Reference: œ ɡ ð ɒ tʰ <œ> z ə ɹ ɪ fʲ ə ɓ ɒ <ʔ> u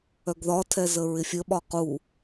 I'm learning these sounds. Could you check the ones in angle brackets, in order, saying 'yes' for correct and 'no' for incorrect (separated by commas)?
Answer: no, no